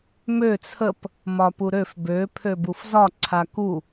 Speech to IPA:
m ø t͡sʰ ə p | m ɒ p u ɾ ø f b ø pʰ ø b u f z ɒ ǀʰ a k u

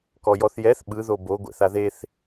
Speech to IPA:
k ɔ j ɔ θ j ɛ θ ɓ ɯ ð o b o ɡʷ ɛ̰ θ a ð e θ

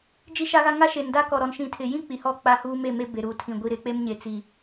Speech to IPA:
d͡ʒ i˦ ʃ a˦ ɣ a˦ ŋ a˦ ʃ e˨ n d a˦ k ɔ˨ ɾ ɔ˨ n ʃ ĩ˨ tʰ ɪ˨ j ĩ˦ k͡p i˨ h ɔ˦˨ k͡p a˦ h uː˦ m e˦˨ m e˦ b e˨ ɾ uː˨ tʰ ĩ˨ ɡʷ i˨ ɾ ɪ˨˦ k͡p e˦ m ɲ e˨ t͡s i˨

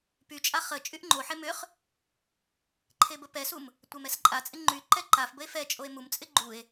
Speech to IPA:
p y t͡ʃʼ a χ ə t͡ʃʼ y ʔ ŋ͡ǃ o ħ e m ʏ χ | ǃʰ e b ə p ɛ s u m | tʷ ɛ m ɛ s ǃʼ a t͡sʼ ɪ ŋ͡ǃ y ǃ ɛ ǃ a f b ə e̯ f ɛ t͡ʃʼ o e̯ m u m t͡sʼ ɪ ɡ͡ǃ u e̯

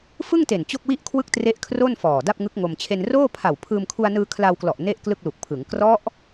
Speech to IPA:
f ɯ˥˩ ŋ t e˨˩ n t͡ɕ o˥˩ k̚ w i˥˩ ʔ kʰ w ɯ˥˩ k̚ t r e˦˥ ʔ kʰ r o˥˩ n f ɔː˨˩ d a˥˩ p̚ ŋ ɯ˦˥ k̚ ŋ o˧ m t͡ɕʰ e˧ n r oː˥˩ pʰ a˨˩ w pʰ ɯː˧ m kʰ u˧ a̯ n ɯː˧ kʰ l a˧ w k l ɔ˨˩ ʔ n e˥˩ ʔ k l ɯ˥˩ k̚ l u˨˩ k̚ pʰ ɯ˩˦ ŋ k r ɔ˦˥ ʔ

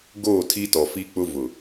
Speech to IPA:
ɡ oː˦˨ tʰ i˦ t ɔ˨ f i˦ k͡p ʊ˦ v ʊ˨

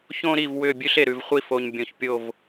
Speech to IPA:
ç õ˦ ɾ i˦˨ v w ʏ˦˨ bʲ ʉ˦ ɬ e˨ ɾ ʉ˨ v χʷ i˦ f o˨ ɲ bʲ õ˨ ç pʲ o˦˨ v

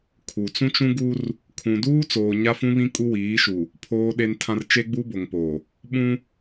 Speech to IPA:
kʰ u˨ t͡s ũ˦ t͡ʃ ũ˦ ɡ u˦ r | kʰ ũ˨ d uː˦ t͡s oː˨ ɲ a˦ f ũ˦ β ĩ˦ kʼ u˦ w iː˨˦ ʃ u˨ | pʰ oː˨ ɗ e˨ n tʰ ã˨ r t͡ʃ e˦ ɡ͡b u˦ b o˨ ŋ p o˨ | ɓ ũ˦

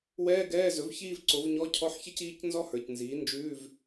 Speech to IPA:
w ɛː˧˥˧ ɡ ɛː˧˥˧ z ɵ˩˥ v ç iː˥˧ v ǀ o˩˥ v ɲ ɔ˧˥˧ cʰ ɔ˧˥˧ ħ ç ɛ˥ c iː˧˥˧ c n z ɔ˥ h ə˞˨˩ c n z iː˩˥ n d͡ʒ ʉː˧˥˧ v

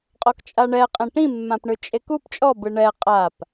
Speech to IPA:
qʼ ɔ k t͡ʃʼ a ɳ ɛ qʼ ẽ ʈ ĩ mː ã p ɳ ɯ t͡ʃʼ e k u p t͡ʃʼ ɔ b ɯ ɳ ɛ qʼ a p

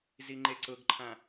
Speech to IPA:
z i ŋ͡ǃ e ǀ ʊ ɡ ǃʰ ã

